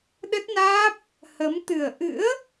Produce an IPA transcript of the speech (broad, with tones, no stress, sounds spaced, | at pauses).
ɗ ə˦˥ t̚ n aː˦˥ p̚ | h ə˨˦ m t̪ ɨ˨˩ ə̯ ʔ ɨ̰˧˥ ə̯